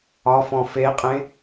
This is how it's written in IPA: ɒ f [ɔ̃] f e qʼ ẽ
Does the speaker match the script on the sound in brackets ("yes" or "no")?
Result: yes